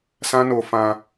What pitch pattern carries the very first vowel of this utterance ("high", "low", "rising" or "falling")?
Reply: high